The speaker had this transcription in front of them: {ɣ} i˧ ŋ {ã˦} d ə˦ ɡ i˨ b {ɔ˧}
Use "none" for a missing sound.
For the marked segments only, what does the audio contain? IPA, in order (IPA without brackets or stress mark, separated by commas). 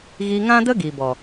ɣ, ã˦, ɔ˨